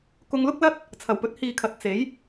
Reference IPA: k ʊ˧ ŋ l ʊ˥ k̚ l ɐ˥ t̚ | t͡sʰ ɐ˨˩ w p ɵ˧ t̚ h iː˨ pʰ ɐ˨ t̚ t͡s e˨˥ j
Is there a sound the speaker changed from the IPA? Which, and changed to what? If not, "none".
pʰ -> kʰ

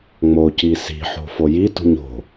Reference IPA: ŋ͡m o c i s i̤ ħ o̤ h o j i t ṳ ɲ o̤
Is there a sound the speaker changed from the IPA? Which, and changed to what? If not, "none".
h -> f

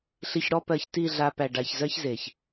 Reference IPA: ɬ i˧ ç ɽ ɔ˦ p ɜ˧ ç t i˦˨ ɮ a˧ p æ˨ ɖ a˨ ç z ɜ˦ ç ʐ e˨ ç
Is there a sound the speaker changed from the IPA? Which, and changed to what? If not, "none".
ʐ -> z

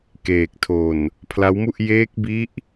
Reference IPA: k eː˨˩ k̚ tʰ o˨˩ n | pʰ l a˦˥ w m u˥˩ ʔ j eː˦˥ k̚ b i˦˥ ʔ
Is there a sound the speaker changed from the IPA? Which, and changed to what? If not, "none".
none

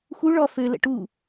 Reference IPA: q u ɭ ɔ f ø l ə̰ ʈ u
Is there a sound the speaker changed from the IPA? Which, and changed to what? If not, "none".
q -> x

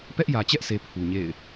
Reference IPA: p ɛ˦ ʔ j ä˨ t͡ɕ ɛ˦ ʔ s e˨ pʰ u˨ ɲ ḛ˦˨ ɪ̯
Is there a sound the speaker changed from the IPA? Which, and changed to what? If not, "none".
none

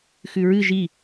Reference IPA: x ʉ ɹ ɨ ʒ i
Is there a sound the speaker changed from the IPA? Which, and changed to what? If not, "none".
none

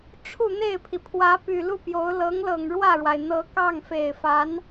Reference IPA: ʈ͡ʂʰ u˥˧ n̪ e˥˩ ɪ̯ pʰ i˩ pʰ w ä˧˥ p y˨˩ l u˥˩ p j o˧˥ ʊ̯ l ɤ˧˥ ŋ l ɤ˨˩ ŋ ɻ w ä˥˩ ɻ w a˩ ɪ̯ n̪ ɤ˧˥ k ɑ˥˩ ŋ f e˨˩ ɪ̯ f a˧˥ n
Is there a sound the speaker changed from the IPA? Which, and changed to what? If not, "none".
none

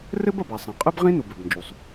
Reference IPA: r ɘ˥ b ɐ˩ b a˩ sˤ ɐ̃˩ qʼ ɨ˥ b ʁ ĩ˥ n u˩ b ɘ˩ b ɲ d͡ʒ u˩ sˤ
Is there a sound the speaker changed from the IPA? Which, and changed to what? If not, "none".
ɲ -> n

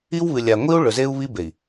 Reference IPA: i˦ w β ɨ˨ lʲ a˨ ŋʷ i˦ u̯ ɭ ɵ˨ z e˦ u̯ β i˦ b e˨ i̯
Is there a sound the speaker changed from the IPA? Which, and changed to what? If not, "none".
none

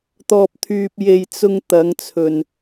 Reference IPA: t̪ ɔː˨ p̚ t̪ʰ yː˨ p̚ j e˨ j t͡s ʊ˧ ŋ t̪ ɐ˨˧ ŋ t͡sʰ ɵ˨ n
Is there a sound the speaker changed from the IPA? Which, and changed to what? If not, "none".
none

